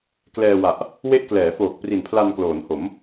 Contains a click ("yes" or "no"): no